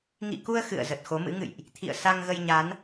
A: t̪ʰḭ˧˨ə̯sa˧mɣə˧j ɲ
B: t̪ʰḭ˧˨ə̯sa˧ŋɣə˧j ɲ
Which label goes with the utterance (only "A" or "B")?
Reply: B